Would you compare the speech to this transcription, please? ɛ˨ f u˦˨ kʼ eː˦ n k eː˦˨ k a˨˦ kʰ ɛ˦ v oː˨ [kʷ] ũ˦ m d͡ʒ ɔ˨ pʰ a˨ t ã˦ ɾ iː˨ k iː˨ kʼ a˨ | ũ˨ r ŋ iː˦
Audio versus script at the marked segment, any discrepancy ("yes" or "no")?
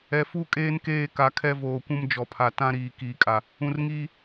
no